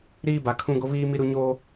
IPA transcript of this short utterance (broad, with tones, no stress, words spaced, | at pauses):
ɾiː˦ba˨kʰũ˦ ɡo˦βiː˦mi˦ɾu˦ ɲoː˦